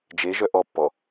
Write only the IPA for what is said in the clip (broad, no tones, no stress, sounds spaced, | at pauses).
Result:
d͡ʒ e ʒ œ ʔ ɔ pː ɔ